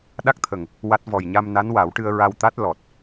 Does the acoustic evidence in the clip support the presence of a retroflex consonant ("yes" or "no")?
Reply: yes